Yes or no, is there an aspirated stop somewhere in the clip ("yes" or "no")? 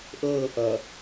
no